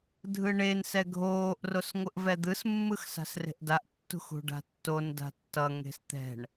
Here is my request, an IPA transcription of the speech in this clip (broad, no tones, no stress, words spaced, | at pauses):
dʱɯɳen sɛɡʱoːʔ rosŋʷɯʔvɛd̪ɯs mːɯxsa̤sre̤ʔdaʔ tːṳxṳɖa̤tːon da̤tːʌ ŋe̤st̪ɛ̤ɳ